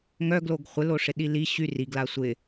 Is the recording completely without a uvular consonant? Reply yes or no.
no